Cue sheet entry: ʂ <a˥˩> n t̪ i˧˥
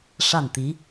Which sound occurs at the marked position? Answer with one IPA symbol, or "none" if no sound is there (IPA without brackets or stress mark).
a˥˩